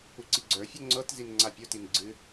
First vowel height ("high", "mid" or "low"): high